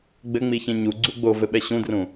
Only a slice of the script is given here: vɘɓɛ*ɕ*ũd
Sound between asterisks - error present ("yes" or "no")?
no